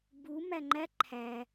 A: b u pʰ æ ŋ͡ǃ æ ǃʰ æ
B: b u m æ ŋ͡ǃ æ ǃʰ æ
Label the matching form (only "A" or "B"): B